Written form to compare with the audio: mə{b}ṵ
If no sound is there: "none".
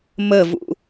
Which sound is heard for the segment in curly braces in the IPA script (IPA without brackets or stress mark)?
v